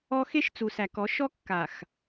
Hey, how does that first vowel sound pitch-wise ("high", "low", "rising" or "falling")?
high